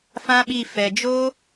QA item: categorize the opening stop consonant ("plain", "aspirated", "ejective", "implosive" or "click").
implosive